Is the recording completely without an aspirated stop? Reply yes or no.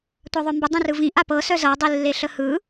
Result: yes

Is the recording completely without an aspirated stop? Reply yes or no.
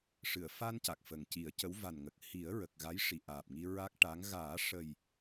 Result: yes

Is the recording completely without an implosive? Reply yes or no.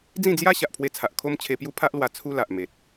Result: yes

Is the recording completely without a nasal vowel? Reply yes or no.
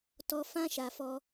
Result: no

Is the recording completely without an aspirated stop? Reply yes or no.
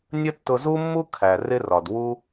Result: no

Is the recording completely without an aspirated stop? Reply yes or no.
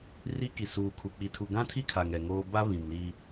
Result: no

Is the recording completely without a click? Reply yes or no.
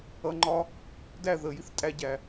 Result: no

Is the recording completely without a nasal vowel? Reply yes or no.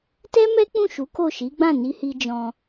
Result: no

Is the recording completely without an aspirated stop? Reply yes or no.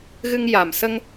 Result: yes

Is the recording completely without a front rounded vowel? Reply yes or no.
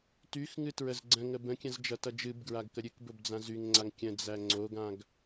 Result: no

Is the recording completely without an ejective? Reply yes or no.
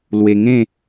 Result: yes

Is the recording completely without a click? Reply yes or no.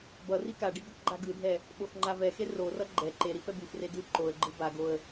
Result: no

